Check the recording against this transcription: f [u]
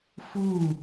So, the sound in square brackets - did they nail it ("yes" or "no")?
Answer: yes